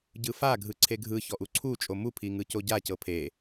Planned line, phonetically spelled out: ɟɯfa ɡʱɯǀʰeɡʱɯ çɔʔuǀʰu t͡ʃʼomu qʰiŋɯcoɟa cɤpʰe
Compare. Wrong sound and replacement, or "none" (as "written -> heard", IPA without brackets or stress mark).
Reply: qʰ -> pʰ